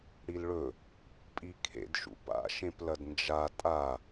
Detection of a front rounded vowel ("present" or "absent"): absent